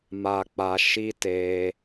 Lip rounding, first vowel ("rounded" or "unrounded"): unrounded